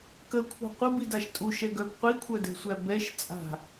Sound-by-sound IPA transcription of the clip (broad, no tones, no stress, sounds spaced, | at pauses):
k ə kʷʰ a̤ qʷ ə b i d a ʃ tʼ u ʃ ɛ ɡ œ b qʷ i kʷʰ œ d ɛ̤ sʷ æ b ɛ ʃ t͡sʼ a̤